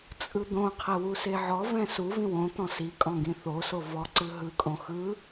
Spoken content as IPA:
t͡sʼ ɯ d̪ õ qʰ ɛ w u s e ʕ ɔ v ɛ̃ s u v ĩ w õ t̪ ɔ̃ s i kʼ ɔ̃ ɡ ĩ θ o s o v ɔ ǀ ɯ ɦ ɯ kʼ õ x ɯ

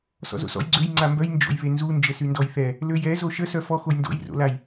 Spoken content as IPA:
s ɔ̰ z o̰ s ɔ̰ j ɡ͡ǀ ø j ŋ͡ǀ a m b œ j n d͡ʒ o̰ j β e n z u n d͡ʒ ə s y n d ɔ j θ ɛ | l ø j ɛ z o ʃ ə s œ f ɔ x o j n d o̰ j r o̰ l a j

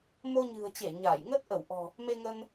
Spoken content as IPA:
m o˧ ɲ ɨ̤˨˩ ə̯ t͡ɕ e˧˩ ɲ a˧˩ j ŋ ə˦˥ t̚ ʔ ə˧˩ w ʔ ɔ̤˨˩ | m e˧ ŋ ə˧ n

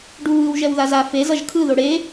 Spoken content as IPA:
ɖ u β ɯ w ʒ ɛ w ð a z a f e z ʌ ʒ kʰ ɯ ð o ɽ e

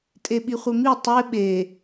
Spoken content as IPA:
tʼ e ɓ i χʷ e m i tˤ e ɓ e

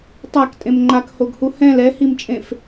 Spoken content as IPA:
tˤ a k tʼ ẽ m ŋ͡ǃ a k h o ɡ h u h ɛ̃ l ɛ h i m t͡ʃʼ ẽ f

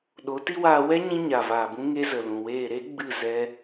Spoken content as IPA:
ɗ o˨˦ t i˦ w aː˧ w ɛ˦ ɲ ĩ˧ ɲ a˨ v aː˨ b ũ˧ ŋ e˧ z ə˨ l ũ˨ w eː˦˨ ɾ e˦ ɡ͡b ɨ˦˨ z ɛ˦

